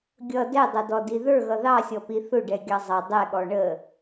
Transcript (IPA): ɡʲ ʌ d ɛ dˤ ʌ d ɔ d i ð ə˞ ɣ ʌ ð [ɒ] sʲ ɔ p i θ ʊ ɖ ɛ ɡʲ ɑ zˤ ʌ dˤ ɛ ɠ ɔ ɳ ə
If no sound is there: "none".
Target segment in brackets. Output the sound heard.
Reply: ɑ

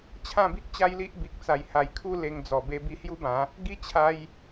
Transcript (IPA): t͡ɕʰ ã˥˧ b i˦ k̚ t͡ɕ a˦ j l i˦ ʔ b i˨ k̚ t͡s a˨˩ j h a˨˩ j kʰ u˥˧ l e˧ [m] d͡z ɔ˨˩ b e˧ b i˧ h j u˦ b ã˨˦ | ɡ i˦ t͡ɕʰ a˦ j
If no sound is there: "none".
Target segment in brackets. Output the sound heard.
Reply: ŋ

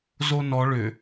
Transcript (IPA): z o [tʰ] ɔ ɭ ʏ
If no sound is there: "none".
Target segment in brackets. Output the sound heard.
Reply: n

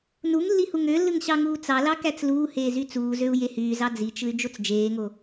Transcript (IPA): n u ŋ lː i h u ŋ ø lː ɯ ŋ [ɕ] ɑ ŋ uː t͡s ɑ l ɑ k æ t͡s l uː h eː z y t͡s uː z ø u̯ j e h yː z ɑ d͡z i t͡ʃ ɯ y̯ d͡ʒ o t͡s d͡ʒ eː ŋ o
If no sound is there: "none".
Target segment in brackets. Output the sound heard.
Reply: ɕ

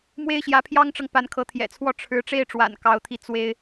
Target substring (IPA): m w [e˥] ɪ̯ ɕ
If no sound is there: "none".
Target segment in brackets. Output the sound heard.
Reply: e˥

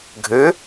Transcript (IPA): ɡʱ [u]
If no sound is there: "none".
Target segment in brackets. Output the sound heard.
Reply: ø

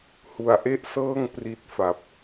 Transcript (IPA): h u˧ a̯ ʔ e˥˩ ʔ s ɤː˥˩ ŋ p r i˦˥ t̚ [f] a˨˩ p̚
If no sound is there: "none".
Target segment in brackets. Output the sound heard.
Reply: f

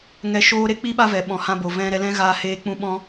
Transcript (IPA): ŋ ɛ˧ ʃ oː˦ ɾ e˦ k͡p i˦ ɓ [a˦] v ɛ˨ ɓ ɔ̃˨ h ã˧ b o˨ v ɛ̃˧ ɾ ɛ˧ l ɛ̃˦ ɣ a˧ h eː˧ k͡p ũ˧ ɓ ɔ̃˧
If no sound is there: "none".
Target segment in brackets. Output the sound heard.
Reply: a˦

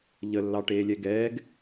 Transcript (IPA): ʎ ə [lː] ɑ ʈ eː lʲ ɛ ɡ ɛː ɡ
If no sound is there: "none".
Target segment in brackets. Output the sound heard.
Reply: lː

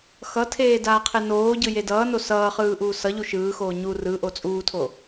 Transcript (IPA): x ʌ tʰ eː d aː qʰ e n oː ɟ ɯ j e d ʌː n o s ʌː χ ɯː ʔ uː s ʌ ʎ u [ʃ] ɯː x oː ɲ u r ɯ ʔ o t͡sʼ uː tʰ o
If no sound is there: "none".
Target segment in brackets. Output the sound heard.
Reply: ʃ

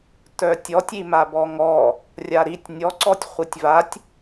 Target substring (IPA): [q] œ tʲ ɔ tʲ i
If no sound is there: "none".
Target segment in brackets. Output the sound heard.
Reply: t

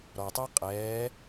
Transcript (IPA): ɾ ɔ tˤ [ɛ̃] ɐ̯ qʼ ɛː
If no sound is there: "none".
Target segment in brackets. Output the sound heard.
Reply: ɛ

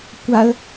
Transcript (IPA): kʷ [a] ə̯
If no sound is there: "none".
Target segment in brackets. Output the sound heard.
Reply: a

